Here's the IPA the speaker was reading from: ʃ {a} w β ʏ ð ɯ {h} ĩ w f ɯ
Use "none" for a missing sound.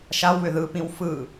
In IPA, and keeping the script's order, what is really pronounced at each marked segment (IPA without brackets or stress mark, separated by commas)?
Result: a, p